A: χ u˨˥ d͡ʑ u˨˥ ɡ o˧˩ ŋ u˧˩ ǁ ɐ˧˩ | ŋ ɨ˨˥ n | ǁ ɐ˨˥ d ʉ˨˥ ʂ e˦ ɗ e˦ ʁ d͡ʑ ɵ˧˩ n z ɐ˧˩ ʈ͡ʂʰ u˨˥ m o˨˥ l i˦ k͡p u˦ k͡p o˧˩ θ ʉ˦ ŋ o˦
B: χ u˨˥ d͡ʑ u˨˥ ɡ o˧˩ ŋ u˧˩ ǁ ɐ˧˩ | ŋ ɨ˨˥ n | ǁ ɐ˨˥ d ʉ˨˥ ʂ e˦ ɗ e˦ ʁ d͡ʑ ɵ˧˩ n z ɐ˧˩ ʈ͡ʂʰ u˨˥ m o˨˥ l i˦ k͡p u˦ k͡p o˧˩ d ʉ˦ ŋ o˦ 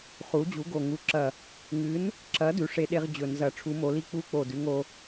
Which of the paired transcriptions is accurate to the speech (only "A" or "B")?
B